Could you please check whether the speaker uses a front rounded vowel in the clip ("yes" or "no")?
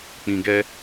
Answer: no